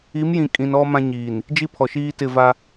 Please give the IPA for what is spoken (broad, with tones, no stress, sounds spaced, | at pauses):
i˨˦ m j ĩ˨ kʼ ĩ˨ n ɔ˦ m ã˦ ɲ iː˨ n | d͡ʒ i˦ pʰ ɔ˨ ʃ iː˦ t ɪ˦˨ v a˦